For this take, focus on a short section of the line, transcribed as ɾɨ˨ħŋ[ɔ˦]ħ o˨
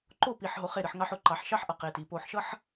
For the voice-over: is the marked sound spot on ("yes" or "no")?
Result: no